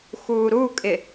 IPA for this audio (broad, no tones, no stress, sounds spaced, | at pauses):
x uː ɾ u kʼ ɪ